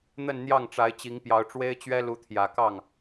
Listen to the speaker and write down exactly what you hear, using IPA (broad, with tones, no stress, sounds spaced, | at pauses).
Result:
n̪ ə˥˧ n n̪ j ɑ˥˩ ŋ ʈ͡ʂ a˧˥ ɪ̯ t͡ɕ i˧˥ ŋ p j ɑ˧˥ ʊ̯ ʈ͡ʂ w e˥ ɪ̯ t͡ɕ ɥ ɛ˥ l u˧˥ t̪ʰ j ä˨˩ k ɑ˥˩ ŋ